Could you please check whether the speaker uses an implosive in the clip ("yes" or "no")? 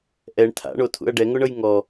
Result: no